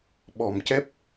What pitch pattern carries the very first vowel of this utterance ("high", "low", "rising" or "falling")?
low